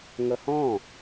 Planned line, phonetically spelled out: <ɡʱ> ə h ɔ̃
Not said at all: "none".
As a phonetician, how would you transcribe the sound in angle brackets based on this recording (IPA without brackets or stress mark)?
ŋ